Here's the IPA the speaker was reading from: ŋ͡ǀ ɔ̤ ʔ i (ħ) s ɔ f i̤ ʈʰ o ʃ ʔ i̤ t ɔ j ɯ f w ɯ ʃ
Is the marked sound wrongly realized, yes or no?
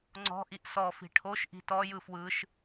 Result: yes